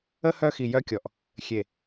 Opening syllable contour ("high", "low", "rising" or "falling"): high